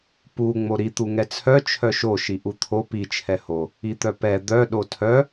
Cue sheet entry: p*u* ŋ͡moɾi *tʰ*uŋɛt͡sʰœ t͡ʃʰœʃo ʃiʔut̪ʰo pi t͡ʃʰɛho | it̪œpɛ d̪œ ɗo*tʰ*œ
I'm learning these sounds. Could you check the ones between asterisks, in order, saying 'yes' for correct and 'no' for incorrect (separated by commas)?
yes, no, yes